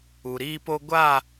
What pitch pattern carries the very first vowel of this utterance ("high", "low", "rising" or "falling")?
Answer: low